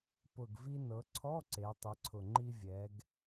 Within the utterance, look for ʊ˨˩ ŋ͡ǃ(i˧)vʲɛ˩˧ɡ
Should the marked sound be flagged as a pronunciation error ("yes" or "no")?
no